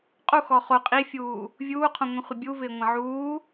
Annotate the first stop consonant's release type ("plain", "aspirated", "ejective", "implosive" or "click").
ejective